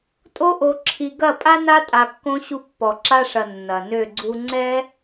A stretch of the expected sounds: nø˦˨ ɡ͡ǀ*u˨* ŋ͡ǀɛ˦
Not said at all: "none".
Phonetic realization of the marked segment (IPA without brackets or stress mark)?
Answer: u˧